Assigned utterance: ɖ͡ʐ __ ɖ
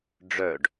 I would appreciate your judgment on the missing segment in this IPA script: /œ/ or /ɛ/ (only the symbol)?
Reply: œ